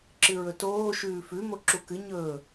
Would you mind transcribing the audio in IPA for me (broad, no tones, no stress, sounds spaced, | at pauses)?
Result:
ǁ ɨ ɹ ɵ t oː ʃ ʉː f ʉ m o ǁ u k ɨ ɲ ɵː